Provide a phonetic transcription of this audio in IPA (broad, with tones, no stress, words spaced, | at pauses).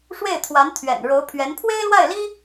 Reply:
ʂwe˥˩ɪ̯ t̪ʰwa˧˥nt̪ʰɥɛ̰˨˩nɻo˧˥ʊ̯pʰɥɛ˧˥n pʰwe˥ɪ̯lwa˥˩ɪ̯li˥